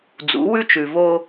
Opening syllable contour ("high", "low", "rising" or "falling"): rising